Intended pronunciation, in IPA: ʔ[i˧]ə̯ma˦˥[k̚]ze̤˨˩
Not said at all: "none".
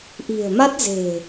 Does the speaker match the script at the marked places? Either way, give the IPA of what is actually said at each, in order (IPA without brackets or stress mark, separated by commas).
i̤˨˩, t̚